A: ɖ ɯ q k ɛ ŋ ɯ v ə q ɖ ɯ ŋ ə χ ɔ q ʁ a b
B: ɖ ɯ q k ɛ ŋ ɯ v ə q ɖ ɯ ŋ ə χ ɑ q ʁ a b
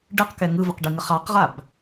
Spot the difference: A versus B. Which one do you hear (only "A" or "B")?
B